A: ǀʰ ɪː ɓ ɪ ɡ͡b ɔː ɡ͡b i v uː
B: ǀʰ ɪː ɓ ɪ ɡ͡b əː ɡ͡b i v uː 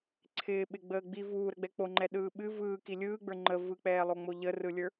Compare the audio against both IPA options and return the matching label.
B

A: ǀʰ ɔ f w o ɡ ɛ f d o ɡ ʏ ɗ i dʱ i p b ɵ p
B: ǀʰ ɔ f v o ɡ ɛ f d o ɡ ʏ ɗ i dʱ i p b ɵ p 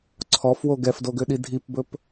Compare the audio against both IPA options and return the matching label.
A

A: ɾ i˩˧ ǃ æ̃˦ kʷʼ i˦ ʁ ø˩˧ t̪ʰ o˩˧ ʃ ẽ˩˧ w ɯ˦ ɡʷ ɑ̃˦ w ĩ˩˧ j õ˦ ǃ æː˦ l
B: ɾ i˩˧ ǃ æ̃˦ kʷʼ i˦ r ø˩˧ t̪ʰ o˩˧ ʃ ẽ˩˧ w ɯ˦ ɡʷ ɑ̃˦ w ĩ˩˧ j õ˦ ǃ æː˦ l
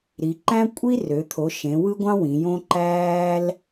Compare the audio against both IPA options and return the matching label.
B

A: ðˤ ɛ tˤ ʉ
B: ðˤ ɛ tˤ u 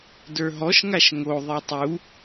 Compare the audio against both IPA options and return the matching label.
B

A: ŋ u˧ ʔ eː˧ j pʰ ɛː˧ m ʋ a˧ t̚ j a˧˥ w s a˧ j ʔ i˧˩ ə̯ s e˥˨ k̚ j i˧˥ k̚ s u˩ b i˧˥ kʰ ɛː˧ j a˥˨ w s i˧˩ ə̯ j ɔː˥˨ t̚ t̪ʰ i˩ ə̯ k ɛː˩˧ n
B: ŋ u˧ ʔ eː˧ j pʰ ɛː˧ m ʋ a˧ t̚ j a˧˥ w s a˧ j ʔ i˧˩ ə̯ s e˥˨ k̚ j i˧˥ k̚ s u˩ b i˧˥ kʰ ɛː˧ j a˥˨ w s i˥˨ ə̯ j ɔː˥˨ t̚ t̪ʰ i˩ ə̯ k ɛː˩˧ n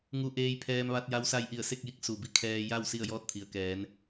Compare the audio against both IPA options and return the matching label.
B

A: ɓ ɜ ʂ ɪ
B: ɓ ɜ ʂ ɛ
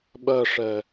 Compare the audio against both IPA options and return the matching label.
B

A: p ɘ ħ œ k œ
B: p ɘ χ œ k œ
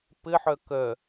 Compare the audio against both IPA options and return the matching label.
A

